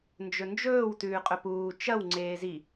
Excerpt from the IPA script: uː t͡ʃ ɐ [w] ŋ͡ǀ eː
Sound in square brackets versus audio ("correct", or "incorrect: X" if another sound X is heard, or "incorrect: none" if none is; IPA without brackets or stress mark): correct